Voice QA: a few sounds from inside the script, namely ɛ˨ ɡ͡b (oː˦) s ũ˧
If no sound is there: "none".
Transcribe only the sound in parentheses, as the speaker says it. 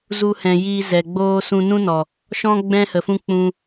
oː˦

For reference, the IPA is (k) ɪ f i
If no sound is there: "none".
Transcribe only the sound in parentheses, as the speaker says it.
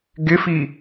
ɡ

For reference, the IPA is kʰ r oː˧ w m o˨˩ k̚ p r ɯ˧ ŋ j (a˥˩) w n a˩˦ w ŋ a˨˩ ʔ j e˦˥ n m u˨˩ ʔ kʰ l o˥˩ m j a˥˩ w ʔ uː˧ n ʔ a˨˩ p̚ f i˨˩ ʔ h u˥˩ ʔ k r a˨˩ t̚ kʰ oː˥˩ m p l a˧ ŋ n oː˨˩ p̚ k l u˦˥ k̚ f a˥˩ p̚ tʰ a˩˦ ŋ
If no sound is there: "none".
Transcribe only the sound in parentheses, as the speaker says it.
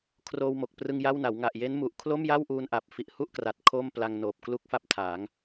a˥˩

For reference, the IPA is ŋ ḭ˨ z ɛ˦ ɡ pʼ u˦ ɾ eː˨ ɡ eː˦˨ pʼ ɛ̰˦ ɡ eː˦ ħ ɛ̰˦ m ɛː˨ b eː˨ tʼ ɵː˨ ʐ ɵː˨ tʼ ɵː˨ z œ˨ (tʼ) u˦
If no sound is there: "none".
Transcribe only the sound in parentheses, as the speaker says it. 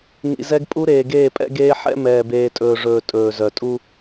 tʼ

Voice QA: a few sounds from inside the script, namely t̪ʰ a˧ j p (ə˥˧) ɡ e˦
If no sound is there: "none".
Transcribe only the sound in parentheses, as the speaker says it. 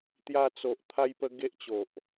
ə˧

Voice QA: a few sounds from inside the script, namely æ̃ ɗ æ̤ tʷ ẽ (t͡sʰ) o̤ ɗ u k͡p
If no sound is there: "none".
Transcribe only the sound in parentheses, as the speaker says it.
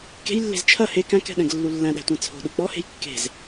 t͡sʰ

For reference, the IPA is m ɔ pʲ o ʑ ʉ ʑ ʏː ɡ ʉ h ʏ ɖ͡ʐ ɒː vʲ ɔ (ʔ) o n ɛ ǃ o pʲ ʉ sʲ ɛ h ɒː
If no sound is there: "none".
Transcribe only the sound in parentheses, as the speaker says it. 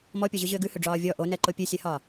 ʔ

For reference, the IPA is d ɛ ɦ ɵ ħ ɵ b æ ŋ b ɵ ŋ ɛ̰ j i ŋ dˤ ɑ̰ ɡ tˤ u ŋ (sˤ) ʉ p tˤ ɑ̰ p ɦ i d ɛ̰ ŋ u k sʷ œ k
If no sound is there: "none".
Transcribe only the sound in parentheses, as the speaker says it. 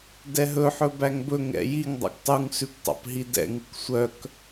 s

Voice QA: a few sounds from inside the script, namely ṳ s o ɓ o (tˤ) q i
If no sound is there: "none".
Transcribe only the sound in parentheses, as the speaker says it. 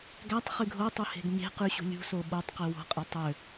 tˤ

